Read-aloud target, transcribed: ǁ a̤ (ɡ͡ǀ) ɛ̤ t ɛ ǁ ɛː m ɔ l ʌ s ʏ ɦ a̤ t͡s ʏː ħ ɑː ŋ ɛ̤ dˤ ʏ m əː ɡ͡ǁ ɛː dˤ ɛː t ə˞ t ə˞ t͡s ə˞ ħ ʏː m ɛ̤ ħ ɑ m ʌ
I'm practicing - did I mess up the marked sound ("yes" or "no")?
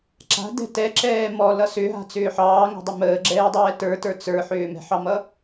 yes